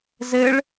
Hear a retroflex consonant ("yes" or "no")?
yes